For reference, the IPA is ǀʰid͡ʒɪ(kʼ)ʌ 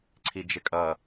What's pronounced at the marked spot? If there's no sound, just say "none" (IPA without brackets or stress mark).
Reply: kʼ